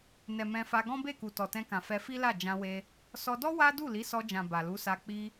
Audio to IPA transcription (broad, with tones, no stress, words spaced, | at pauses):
nɛ˨ mɛ̃˧fa˧ ɡɔ̃˦be˦˨ku˨ tɔ˨tɛ̃˧kã˨ fɛ˧fi˦la˦˨ d͡ʒã˧we˧ | sɔ˧dɔ˦ wa˦ du˦˨li˨˦sɔ˧d͡ʒã˨ ba˨lu˨˦sa˧ k͡pi˧